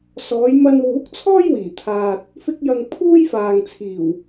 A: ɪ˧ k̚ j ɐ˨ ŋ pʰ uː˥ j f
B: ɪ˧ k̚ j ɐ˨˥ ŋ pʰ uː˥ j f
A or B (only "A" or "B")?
A